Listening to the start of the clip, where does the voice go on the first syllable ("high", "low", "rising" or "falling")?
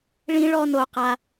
high